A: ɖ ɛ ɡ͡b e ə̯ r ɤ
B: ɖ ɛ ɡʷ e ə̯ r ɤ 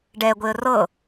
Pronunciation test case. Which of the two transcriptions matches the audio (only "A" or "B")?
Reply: B